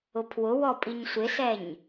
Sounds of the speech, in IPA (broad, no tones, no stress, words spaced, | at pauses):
ʊpʰwʊwɔ pʼiɲsʷɪsɛɲ